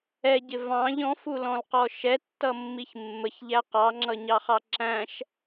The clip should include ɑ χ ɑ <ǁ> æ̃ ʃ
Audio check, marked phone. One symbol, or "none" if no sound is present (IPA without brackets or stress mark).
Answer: ǁ